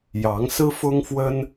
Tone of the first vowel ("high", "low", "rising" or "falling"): rising